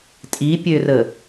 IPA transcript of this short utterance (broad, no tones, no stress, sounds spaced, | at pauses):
tʼ i pʲ ø r ə